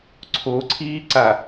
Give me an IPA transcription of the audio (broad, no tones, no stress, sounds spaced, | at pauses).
ǀʰ o ǀʰ iː ǀ a